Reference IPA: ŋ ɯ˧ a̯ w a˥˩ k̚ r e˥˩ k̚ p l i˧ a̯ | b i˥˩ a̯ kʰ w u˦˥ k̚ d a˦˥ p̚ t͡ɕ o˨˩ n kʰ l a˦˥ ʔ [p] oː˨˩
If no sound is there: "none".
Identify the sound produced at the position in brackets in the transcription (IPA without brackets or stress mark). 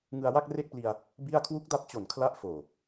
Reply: f